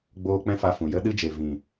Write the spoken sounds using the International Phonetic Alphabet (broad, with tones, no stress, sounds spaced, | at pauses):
ɡ͡b oː˧ k͡p ɛ̃˦ f a˧ f ũ˨ j ə˦ ɗ ɨ˧ d͡ʒ e˨ v ĩ˨